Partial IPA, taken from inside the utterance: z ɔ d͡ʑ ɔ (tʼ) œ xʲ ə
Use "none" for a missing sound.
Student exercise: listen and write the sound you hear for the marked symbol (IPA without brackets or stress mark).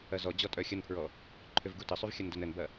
tʼ